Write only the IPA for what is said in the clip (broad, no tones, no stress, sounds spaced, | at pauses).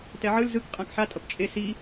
t ɛ ʕ ɯ l z ɯ k qʼ ã k ħ a tʼ ʌ p t͡ʃʼ e s i